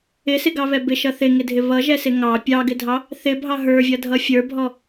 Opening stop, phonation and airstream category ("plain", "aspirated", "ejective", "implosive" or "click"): plain